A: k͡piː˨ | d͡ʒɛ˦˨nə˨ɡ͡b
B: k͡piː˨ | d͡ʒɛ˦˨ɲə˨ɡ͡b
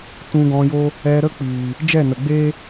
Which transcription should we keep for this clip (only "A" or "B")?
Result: A